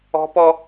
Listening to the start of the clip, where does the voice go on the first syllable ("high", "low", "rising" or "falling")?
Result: high